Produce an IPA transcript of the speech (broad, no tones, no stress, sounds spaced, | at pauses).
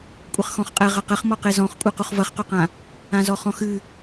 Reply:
kʷʼ ɘ χ x ɔ̃ χ qʼ ɛ ʁ ɐ q ɘ χ m ɔ q e z ɔ̃ χ kʷʼ ɨ q u χ v ɐ χ q o q ã | ã z ɔ χ ɔ̃ x ɨ